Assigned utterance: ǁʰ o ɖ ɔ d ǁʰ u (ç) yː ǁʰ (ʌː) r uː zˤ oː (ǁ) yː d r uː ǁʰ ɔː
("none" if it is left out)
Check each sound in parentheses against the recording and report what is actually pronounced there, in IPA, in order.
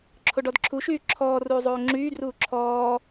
ʃ, ɔː, ŋ͡ǁ

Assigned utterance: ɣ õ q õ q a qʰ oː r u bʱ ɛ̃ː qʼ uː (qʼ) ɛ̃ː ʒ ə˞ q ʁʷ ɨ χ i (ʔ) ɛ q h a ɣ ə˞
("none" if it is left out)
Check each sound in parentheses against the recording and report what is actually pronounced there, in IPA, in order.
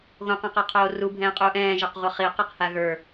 ʔ, q

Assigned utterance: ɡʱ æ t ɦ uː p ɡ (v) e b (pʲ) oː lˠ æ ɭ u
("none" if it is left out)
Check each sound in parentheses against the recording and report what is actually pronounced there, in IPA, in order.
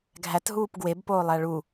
w, p

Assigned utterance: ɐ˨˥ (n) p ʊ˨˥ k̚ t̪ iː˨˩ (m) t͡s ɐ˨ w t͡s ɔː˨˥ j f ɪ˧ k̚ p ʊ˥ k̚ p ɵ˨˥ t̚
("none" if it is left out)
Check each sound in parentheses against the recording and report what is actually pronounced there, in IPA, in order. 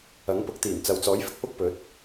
ŋ, m

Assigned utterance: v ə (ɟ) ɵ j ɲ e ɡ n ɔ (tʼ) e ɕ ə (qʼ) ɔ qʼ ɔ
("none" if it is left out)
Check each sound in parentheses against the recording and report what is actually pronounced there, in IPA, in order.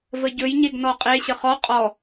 ɟ, qʼ, χ

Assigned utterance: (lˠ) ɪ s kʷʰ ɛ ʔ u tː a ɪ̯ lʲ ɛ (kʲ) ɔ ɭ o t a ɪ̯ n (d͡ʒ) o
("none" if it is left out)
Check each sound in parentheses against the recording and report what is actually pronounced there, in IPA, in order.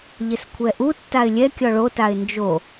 ʎ, kʲ, d͡ʒ

